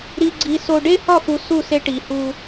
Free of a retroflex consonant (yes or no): no